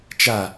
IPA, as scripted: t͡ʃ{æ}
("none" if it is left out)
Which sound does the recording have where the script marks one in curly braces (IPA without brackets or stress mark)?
a